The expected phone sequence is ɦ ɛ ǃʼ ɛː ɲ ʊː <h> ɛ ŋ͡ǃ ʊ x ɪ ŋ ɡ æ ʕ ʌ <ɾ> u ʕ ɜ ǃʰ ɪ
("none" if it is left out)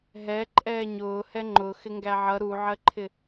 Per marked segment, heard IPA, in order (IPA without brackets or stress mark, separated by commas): h, ɾ